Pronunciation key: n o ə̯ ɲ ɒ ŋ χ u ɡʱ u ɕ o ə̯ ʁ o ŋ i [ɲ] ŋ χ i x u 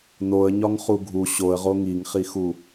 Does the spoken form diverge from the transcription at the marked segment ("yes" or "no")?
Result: yes